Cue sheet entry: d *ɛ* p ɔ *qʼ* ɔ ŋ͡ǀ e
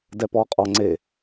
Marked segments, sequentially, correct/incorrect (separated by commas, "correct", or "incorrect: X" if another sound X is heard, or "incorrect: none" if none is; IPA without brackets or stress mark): correct, correct